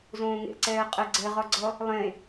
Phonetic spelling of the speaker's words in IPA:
z õː ŋ ḛ ǀ ɛː qʼ ɛ ɡ͡ǀ ɛ ʁ ɒ ɡ͡ǀ ʌ | lˠ ẽ

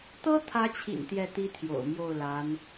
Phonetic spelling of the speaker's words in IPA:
t̪ ɤ˥ t̪ʰ ä˧˥ t͡ɕʰ ḭ˨˩ n t̪ j ɛ˥˩ t̪ i˥ t̪ʰ j o̰˨˩ ʊ̯ m j o˥˩ ʊ̯ l a˧˥ n

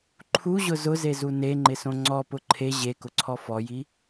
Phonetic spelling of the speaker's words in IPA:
ǃʰ u ʑ ʊ z ʊ z e z u n e ŋ͡ǃ ɪ s õ ŋ͡ǀ ɔ p ʊ ǃʰ e ʑ e k ʊ ǀʰ ɔ f ɔ j i

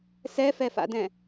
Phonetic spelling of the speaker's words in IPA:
s ɛ f ɛ f a̰ d ɛ̃

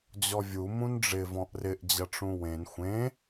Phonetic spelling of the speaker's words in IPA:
d͡ʑ ɔ vʲ u m ũ n ɖ͡ʐ ɪ v ɔ̃ ʔ r ɪ ʔ d͡ʑ ɐ ʈ͡ʂ ũ w ẽ n xʷ ẽ

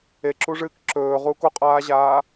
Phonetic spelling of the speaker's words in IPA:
e ǁ u ʐ ɨː k ǁ ɵː ʁ uː k o qʼ aː ʑ aː

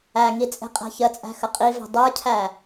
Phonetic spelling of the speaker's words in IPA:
æ ŋ i t͡sʼ e̤ qʼ æ̤ ç ə t͡sʼ æ̤ x ə qʼ i v e̤ dˤ ə˞ cʰ æ

